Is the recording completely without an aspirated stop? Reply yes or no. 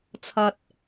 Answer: no